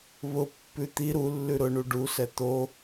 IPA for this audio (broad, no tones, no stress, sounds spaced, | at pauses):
β ʊ pː ʉ t̪ i ɾ u lː ʉ ɾ ʊ ɳ u ɖ u s ɛ t̪ o